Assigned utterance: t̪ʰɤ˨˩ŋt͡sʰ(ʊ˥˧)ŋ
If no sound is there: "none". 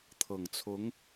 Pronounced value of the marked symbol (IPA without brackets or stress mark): ʊ˧˥